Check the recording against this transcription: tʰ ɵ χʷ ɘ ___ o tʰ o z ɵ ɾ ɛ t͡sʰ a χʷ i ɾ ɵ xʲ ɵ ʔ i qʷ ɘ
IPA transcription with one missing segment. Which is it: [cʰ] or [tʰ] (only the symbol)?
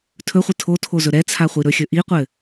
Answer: tʰ